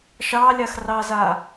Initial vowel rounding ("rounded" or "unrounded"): unrounded